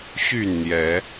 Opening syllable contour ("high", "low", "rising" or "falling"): falling